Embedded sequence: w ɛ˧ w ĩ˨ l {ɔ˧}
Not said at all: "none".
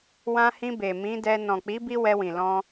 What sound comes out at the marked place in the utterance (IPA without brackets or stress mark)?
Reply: ɔ̃˧